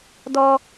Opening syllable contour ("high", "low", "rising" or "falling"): high